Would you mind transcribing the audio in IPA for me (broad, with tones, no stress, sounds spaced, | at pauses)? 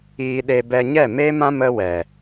iː˧ ɗ e˧ b ɛ˧ ɲ ɛ˦˨ m eː˦ m ã˦ m ə˧ w ɛ˨